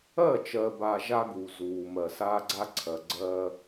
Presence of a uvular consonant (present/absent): absent